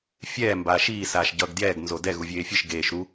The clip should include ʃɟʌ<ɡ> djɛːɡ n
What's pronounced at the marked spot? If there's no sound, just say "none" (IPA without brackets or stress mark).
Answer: ɡ